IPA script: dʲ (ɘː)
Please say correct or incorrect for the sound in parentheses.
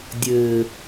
correct